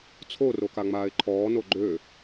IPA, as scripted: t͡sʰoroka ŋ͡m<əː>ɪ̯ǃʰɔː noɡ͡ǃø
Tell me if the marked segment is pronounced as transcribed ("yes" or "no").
no